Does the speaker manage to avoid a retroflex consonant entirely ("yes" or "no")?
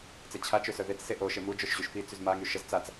yes